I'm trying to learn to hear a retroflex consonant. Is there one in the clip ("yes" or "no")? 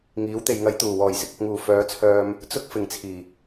no